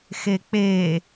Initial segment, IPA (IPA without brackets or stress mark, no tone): x